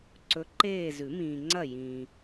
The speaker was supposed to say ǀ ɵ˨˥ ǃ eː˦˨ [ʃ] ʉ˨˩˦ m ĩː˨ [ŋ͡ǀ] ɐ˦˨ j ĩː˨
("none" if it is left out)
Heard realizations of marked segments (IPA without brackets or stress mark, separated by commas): z, ŋ͡ǀ